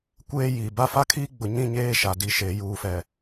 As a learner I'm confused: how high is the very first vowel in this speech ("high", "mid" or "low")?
mid